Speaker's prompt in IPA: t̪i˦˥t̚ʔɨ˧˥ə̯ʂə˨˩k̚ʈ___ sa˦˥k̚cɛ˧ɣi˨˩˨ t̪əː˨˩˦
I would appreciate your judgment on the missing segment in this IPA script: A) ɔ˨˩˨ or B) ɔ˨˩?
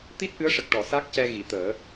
A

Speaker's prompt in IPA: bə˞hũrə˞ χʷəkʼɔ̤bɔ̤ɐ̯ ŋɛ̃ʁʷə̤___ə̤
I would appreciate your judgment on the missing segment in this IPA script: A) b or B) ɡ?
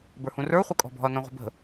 A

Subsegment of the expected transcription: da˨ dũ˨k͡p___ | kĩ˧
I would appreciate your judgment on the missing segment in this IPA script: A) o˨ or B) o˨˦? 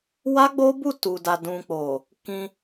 A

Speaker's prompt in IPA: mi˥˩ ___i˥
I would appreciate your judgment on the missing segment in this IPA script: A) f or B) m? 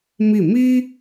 B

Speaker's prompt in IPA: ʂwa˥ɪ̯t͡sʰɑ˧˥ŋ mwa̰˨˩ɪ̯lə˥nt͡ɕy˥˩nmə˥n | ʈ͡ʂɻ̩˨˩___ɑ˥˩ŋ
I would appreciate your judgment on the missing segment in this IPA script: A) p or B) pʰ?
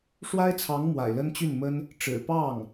A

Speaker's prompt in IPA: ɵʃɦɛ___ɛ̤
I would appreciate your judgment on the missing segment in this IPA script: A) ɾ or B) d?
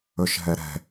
A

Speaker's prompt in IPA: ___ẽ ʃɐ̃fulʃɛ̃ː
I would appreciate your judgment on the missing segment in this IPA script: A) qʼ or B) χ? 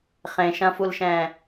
B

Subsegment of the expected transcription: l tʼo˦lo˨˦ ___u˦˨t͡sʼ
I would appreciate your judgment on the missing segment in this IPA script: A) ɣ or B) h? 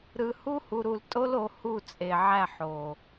B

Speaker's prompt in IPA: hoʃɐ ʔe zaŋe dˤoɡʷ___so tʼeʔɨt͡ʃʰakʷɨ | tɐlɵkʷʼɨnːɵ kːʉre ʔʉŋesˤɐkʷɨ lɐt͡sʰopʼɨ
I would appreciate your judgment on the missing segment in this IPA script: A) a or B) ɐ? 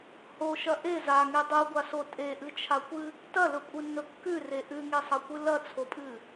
A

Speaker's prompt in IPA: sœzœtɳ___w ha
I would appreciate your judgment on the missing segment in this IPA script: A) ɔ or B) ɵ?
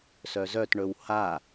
B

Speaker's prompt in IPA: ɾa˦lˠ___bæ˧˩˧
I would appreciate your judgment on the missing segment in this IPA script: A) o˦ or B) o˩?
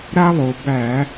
B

